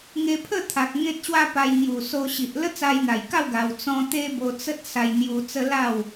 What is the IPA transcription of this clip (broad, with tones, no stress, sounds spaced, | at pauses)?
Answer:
ŋ e˧ pʰ ə˥˧ t̪ʰ a˨ k̚ ŋ ẽ˦ t̚ ɕ w a˦ p a˧ j ŋ j u˨˩ s o˧ ɕ i˨ ʔ l ə˦ t͡s a˧ j n̪ a˨˩ j k a˥˧ w ɡ a˧ w t͡s ɔ̃˦ t̪ e˦ b o˧ t͡s ə˦ t̚ s a˧ j n̪ j u˧ t͡s ə˦ l a˥˧ w